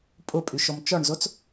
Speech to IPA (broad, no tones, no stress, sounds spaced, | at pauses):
pʼ ʊ pʼ y ʃ ɔ m t͡ʃ ɔ ɳ z o t͡s